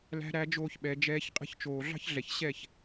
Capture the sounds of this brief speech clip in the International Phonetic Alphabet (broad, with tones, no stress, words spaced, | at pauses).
læ̤˧ɾæ˧d͡ʒoː˧çɓɛ˨ d͡ʒɛː˧ç qʼɛ̤˧çt͡ʃoː˨ɮɑ̤˦çɮɛ˨ç ɕɛ˦˨ç